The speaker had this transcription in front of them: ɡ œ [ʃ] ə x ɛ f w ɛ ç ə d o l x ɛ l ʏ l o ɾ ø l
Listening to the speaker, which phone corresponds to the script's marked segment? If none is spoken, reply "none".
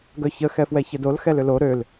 ç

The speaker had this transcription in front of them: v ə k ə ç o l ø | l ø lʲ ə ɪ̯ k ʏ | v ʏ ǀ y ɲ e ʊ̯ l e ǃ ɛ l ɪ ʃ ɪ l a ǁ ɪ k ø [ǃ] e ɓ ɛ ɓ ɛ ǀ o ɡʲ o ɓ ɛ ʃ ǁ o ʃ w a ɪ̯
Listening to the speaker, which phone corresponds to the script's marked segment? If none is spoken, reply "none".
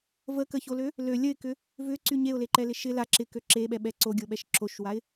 ǁ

